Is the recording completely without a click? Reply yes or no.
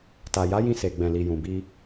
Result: yes